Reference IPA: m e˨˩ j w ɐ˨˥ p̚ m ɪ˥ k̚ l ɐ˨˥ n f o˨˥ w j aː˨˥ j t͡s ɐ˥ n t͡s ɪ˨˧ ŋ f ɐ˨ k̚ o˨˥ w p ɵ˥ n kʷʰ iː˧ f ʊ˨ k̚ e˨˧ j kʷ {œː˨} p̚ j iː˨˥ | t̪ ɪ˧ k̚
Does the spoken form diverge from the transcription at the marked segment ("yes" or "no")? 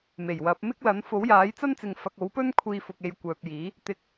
no